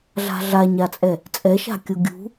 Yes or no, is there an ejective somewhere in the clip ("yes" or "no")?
yes